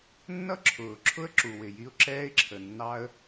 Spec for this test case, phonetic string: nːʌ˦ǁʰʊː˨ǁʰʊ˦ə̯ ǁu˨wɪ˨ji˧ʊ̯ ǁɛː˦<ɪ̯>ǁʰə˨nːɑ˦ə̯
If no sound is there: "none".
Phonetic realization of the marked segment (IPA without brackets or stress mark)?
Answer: ɪ̯